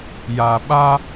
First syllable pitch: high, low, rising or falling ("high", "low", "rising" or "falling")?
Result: low